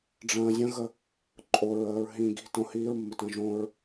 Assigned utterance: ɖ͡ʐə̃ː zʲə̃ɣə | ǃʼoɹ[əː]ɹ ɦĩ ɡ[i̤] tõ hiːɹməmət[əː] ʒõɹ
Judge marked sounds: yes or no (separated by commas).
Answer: yes, yes, no